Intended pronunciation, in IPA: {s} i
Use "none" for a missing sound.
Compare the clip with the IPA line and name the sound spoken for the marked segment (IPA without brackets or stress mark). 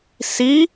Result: s